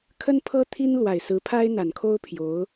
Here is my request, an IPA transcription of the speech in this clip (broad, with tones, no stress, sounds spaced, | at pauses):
kʰ ə˥ n pʰ ɤ˥ t̪ʰ i˥ n l w a˨˩ ɪ̯ s ɹ̩˧˥ pʰ a˥ ɪ̯ n̪ a˨˩ n kʰ o˥ ʊ̯ pʰ j o˧˥ ʊ̯